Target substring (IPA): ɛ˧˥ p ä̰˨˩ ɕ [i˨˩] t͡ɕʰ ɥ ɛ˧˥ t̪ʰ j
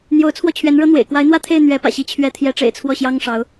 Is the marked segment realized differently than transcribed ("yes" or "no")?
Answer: yes